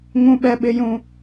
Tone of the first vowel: high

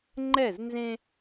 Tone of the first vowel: falling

